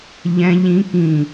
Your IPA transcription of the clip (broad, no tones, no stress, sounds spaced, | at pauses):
ʎ ɛ̃ ʎ ĩ k ĩ